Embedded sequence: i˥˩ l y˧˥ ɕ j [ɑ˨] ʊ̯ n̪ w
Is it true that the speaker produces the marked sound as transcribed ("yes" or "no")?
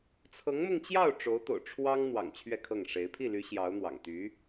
no